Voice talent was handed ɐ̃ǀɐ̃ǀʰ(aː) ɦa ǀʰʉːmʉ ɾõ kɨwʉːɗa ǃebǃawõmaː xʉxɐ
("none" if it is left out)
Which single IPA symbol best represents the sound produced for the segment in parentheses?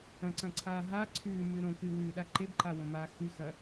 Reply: aː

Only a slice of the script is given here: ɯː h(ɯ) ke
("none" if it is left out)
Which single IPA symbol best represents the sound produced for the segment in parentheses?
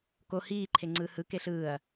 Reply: ɯ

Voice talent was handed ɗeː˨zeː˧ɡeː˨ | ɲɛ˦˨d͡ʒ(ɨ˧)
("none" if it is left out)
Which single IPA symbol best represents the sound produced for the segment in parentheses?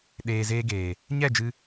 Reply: ɨ˧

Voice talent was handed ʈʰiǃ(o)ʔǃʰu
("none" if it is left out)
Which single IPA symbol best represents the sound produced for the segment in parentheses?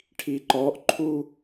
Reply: ɔ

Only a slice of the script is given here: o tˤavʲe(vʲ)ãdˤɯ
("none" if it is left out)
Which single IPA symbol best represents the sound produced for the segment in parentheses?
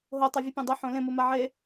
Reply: pʲ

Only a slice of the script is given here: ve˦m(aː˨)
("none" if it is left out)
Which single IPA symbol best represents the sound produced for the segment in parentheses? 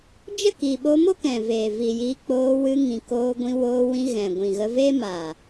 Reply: aː˨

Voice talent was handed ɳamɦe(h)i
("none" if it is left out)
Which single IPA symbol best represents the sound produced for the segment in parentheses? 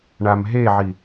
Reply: ʕ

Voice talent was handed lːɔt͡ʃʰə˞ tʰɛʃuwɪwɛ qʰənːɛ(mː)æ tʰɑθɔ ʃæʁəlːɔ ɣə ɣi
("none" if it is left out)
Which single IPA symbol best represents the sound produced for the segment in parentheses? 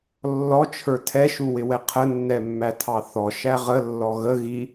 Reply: mː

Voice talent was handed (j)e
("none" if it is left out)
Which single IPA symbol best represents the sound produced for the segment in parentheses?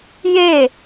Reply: j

